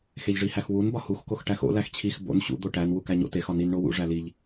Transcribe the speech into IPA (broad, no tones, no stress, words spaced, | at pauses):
xeʎʐihæxwun bɒhuxkox ʈæxo̰ læxt͡ɕʰix bo̰n ɕṵ d̪oʈæn wukæɲo̰tex ɒnin ɳowṵ ʐæliʎ